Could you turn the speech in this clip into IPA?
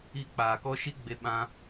i˧k͡paː˨kɔ˦ ʃi˦ɡ͡be˧ ɓã˦

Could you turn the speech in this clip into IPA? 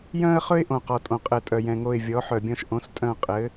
jœ̃˥ə̯χɵ˥ɪ̯ ʔõ˨qɔ˨tʼõ˨ qʼɘ˨ tʼœ˨jɛ̃˨ŋo˦˨ɪ̯ vʲɔ˨˥ħœ˨bʲɔ̃˥ʃ ʔõ˨˥stʼœ̃˦˨ qʼɘ˨˥

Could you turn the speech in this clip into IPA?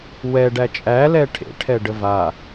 wɛɖæ t͡ʃʼælɛ ʈʰḛʈʰɛ ɖəva

